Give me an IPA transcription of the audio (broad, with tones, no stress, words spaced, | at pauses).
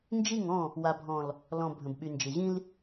nd͡ʒi˦˨ŋɔ̃˦˨ | wa˨bʱɔ̃˨l | lɔ̃˨ bʱə̃˨b ɓy˨nd͡ʒɪ˨ʑĩ˦l